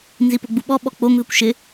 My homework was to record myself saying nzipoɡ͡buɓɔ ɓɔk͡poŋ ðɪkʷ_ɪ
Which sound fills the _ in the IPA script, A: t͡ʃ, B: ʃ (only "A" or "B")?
B